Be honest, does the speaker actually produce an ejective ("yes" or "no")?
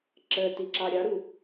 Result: no